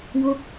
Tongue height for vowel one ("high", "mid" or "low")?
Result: mid